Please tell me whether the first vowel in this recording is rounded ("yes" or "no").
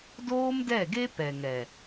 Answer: yes